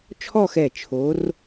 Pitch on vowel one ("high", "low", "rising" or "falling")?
falling